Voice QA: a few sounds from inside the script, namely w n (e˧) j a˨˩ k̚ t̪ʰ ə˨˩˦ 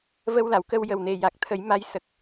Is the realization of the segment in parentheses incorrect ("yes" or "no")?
yes